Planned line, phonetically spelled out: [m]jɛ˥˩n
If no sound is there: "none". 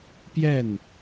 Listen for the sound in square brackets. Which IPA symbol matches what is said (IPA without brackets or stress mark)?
p